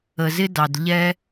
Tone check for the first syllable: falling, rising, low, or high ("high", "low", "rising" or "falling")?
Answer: low